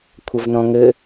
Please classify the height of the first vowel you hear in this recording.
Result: low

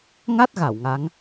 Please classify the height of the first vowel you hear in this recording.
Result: low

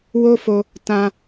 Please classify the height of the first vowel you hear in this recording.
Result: mid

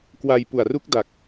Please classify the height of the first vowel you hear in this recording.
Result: low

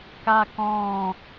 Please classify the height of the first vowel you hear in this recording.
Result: low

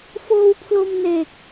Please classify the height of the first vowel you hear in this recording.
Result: mid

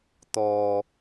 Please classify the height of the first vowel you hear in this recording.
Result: mid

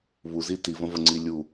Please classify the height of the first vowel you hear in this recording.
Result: high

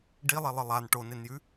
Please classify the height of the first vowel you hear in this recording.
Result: high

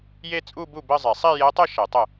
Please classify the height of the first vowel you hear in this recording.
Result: mid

